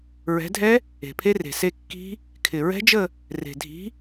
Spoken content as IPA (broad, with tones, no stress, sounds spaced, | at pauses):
ɹ ɛ̤˨˦ dʱ ɛ˦˥ | e̤˨˩ pʰ e˦˥ r e̤˨˩ s e˥˧ kː i̤˦˥ | kʰ ɪ˨˩ ɹ ɛ̤˦˥ d͡ʒ ə˥˧ | r e̤˨˩ dʱ i̤˨˦